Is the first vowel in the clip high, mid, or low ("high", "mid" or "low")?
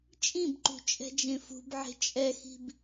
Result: high